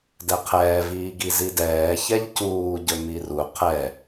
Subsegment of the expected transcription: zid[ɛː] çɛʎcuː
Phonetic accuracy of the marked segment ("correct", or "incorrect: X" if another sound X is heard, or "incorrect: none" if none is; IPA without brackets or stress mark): correct